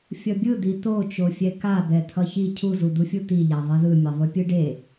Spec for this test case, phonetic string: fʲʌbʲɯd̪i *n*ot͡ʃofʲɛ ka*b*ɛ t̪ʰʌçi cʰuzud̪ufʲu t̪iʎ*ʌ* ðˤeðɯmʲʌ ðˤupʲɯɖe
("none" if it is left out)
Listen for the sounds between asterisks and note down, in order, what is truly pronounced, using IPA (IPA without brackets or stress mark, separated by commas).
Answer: t̪, b, a